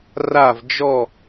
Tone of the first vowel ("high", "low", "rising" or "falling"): falling